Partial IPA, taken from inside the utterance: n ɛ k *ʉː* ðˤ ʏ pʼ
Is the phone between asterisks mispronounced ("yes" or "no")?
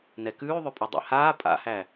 no